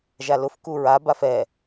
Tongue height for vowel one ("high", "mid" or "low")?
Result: low